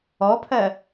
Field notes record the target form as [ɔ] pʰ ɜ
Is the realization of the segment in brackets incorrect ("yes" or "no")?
no